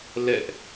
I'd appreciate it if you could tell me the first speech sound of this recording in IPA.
l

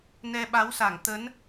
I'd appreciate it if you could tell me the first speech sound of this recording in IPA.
n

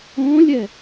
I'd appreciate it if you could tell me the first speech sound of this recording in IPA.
õː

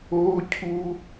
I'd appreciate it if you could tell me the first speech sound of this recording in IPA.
oː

